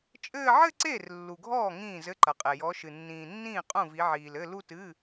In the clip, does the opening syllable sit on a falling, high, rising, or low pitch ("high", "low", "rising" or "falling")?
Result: falling